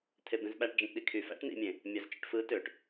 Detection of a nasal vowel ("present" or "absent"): present